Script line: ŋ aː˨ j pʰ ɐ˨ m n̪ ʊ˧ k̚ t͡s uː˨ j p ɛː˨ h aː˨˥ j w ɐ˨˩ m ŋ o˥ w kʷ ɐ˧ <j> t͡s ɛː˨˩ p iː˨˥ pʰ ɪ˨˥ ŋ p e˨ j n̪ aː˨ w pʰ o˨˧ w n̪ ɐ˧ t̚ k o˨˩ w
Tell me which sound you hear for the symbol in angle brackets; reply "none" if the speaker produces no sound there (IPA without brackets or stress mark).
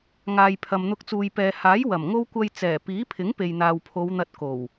j